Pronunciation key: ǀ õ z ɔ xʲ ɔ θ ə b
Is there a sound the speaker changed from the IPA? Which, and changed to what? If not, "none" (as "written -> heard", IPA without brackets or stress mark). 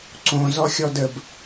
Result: θ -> d